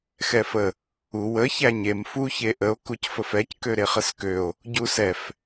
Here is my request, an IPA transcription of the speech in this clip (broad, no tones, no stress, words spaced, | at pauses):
xɛfə | u wə çæɲem fu çeʔəo̯ kucfəfɛc køɾeχəskøo̯ | ɟusɛf